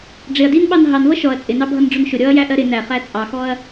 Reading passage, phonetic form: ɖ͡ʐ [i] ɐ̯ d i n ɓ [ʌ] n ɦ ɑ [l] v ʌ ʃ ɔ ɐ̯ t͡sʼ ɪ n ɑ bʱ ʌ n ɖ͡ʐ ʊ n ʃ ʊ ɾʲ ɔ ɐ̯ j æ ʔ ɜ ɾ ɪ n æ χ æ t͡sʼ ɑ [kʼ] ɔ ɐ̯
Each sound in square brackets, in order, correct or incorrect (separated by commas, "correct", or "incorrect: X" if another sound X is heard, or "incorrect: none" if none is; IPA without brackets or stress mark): incorrect: ɪ, incorrect: ɑ, incorrect: n, incorrect: x